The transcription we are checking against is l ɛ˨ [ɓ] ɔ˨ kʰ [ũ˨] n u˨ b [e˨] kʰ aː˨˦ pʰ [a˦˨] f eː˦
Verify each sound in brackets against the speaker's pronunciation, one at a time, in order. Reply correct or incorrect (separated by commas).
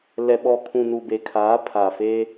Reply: correct, correct, correct, incorrect